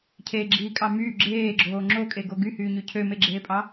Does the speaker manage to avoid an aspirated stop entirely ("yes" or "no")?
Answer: no